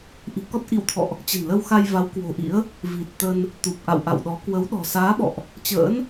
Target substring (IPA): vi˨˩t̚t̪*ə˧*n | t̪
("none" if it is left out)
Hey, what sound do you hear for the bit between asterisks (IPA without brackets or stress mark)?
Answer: ə˧